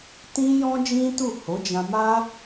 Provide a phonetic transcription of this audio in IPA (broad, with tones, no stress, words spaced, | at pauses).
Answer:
tĩ˦ jɔ̃˦d͡ʒĩ˦tu˦˨ ho˨˦d͡ʒã˧ma˦